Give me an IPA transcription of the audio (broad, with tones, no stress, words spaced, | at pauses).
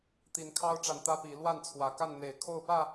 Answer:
t̪i˨˦nkʰɑ˦ʊ̯ʈ͡ʂa˨n t̪ä˦pi˨˦ lwa˥˨nt͡sʰwä˨˩ka˥˨n n̪e˨˩ɪ̯kʰo˥˨ʊ̯pä˥˨